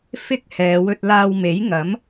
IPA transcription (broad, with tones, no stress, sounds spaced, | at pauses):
f ɪ˥ k̚ h ɛː˨˧ w ɵ˧ t̚ l aː˧ w m e˨˥ j ŋ ɐ˨˥ m